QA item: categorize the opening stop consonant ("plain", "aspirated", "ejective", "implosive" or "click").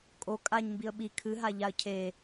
ejective